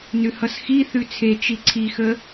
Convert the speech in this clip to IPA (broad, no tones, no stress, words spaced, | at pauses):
nʉhʌsxi θʉt͡sʰe t͡ʃiǀʰixə